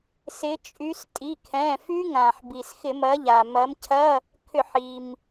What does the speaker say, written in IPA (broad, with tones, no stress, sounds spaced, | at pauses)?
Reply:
s ɪ˨˦ t͡ʃʼ y˨˦ s tʼ i˩˧˩ kʰ ɛ̃˩˧˩ f y˦˥ ŋ ã˩ ħ b i˩ s x ɪ˧˩˧ m ɐ˨˦ ʎ a˩ m ɐ˨˦ m cʰ ɐ˧˥˧ | kʰ ʏ˧˩˧ ħ i˩ m